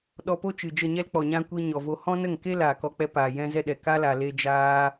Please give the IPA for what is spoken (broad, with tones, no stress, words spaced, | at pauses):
ɗɔ˧po˦ t͡ʃɨ˨d͡ʒə˦˨ɲɛ˦l k͡pɔ˨ɲã˧ kʷi˧ɲɔ˨vo˧ hɔ̃˦nə˦˨ŋke˦ laː˨kɔ˧k͡pɛ˧paː˨ jɛ̃˦zɛ˦ɗɛ˨ ka˦la˨ le˧d͡ʒaː˧